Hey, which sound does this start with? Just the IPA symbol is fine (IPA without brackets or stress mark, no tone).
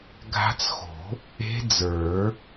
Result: ɡʱ